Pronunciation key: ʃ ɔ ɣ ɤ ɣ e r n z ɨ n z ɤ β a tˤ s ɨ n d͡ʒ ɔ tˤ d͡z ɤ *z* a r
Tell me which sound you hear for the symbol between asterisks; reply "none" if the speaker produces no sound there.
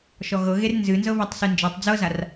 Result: z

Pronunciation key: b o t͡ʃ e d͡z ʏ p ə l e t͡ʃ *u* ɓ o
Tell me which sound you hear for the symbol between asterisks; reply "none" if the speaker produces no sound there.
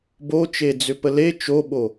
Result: o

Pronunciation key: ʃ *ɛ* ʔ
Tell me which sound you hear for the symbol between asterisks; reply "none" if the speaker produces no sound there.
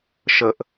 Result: ə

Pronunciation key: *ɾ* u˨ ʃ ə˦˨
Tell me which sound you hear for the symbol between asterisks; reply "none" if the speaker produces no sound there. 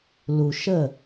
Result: l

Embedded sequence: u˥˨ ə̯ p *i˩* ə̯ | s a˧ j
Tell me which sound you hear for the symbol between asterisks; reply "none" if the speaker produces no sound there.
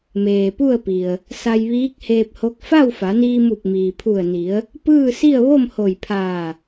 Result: i˩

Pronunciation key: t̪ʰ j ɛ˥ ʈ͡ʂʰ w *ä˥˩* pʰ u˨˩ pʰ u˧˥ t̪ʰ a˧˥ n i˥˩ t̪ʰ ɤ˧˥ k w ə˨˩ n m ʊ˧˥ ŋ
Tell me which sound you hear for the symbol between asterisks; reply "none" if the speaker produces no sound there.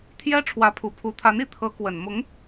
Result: ä˧˥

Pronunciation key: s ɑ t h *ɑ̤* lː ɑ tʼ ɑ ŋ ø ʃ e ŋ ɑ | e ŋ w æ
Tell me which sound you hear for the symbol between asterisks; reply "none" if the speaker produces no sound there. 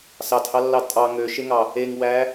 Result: ɑ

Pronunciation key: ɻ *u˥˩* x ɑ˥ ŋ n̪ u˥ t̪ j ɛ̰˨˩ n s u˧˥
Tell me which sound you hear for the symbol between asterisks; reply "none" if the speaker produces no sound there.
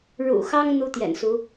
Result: ṵ˨˩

